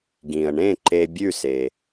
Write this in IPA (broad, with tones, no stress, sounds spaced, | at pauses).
ɡ ĩ˩ ə̯ ɳ ẽ˥˩ ǃ e˧ bʲ ʉ˥˩ s e˩